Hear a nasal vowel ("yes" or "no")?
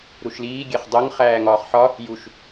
no